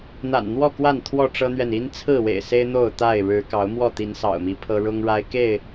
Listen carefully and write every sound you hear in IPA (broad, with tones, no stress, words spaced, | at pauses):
n̪a̰˨˩nn̪wɔ˥˨kwa˥˨n t̪ʰwɔ˥˨ʈ͡ʂɤ˦n̪ɥɛ˨n i˦nt͡sʰɹ̩˥˨wḛ˨˩ɪ̯se˦ɪ̯ n̪o˥˨ʊ̯t̪a˥˨ɪ̯ ɻɻ̩˨˦ kɑ˨˦ʊ̯mwɔ˥˨ t̪i˨˦nsɑ̰˨˩ʊ̯mi˨˦pʰɤ˦ ɻʊ˦ŋɻa˦ɪ̯ ke˥˨ɪ̯